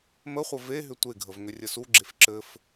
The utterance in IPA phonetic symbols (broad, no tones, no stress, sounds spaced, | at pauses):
m ə χʷ ə v e ɦ ʏ tʷ e ɡʱ ə v ŋ ʏ rʲ ɘ s u ɡ͡ǁ e f ǁ ɘ f